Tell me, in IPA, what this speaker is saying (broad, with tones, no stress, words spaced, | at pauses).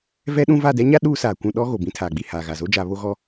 vɛ˦ɗũ˦ va˦˨dɛ˦ɲa˦ ɗuː˦ saː˨kʷũ˦˨ɗɔ˦ ɣo˨bĩ˦ tʰaː˨ɡ͡bi˦˨ haː˨ɣa˨zo˦d͡ʒa˨˦ βo˦ɣɔ˦